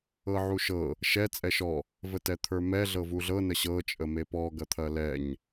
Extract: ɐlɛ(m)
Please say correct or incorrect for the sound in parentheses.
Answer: incorrect